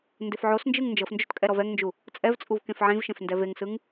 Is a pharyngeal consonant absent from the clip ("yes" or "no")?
no